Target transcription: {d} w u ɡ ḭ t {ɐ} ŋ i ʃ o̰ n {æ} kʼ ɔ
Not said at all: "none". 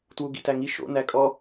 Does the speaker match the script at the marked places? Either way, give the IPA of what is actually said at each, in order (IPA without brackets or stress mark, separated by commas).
t, æ, æ